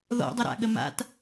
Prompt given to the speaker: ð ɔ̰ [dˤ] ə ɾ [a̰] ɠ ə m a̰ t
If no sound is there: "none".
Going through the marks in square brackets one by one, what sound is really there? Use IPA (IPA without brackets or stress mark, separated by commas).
dˤ, a̰